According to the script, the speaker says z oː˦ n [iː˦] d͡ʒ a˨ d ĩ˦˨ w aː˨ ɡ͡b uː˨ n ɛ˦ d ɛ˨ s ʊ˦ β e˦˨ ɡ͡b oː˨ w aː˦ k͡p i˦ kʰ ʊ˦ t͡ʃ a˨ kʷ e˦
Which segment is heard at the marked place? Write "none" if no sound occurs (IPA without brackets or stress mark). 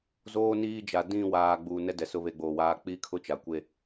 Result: iː˦